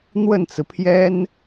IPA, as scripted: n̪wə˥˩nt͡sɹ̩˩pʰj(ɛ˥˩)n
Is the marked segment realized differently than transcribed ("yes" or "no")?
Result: yes